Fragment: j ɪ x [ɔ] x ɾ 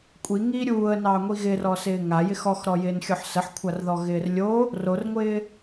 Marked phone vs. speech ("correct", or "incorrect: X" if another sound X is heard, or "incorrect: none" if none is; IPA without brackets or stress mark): correct